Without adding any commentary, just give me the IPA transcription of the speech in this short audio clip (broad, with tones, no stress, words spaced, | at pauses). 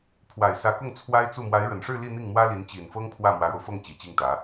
pʰwa˨˩ɪ̯ sä˧˥kʊ˥˩ŋ t͡sʰwa˥ɪ̯t͡su˥˩ mwa˧˥ɪ̯ɻə˨˩nʂɻ̩˥˧ li˥˧ n̪i˥˩ŋmwä˥li˧˥n t͡ɕi˨˩nfɤ˥ŋ pʰwä˥˩mwä˧˥ɻo˧ʊ̯ fɤ˥˩ŋ t͡ɕi˨˩t͡ɕi˥˩ŋt̪ä˧˥